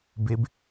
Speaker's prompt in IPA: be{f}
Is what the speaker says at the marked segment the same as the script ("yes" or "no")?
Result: no